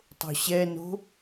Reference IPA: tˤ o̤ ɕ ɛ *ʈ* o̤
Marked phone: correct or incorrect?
incorrect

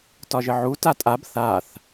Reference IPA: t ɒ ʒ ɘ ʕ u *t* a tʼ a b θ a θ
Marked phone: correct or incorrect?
correct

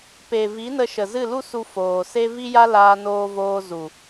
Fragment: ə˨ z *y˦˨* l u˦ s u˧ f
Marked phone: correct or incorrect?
incorrect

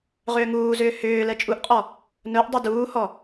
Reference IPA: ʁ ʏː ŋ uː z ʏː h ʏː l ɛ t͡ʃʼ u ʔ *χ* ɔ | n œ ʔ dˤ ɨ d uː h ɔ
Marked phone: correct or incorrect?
incorrect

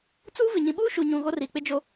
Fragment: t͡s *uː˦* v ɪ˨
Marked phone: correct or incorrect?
correct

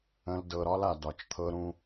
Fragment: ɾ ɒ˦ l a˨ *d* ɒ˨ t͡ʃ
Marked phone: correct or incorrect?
correct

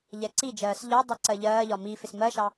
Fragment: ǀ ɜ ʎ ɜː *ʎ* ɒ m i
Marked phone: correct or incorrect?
correct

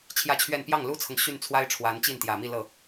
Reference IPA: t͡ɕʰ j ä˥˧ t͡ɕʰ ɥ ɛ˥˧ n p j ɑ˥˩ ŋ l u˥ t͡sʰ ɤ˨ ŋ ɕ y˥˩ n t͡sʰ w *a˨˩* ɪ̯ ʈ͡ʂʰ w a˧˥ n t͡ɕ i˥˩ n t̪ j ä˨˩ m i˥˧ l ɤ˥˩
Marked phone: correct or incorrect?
incorrect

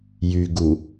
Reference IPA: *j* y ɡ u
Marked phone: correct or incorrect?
correct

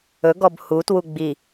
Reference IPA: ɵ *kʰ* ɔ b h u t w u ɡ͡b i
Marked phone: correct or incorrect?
incorrect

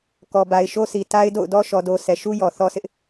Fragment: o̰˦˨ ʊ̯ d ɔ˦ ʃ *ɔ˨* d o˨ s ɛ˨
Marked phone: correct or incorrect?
correct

